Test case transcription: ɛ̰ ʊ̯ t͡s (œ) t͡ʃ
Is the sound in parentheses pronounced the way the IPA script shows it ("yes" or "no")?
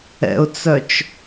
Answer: yes